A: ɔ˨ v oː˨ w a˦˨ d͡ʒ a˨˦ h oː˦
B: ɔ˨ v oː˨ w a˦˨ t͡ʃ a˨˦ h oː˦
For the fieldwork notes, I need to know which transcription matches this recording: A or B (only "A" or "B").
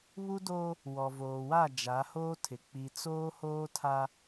A